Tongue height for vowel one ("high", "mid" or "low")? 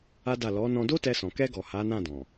low